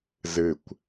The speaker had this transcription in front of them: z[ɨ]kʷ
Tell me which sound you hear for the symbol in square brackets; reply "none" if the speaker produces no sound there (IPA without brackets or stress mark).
ɨ